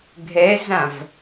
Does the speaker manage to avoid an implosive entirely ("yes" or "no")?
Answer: yes